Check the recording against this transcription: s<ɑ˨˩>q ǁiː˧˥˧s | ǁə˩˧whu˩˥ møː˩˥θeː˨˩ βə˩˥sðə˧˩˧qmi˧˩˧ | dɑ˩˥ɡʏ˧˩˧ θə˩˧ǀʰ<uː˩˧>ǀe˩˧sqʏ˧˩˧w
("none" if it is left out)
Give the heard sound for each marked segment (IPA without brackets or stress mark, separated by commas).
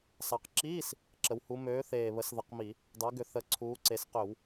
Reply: ɑ˨˩, uː˩˧